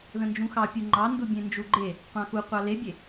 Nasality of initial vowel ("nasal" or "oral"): nasal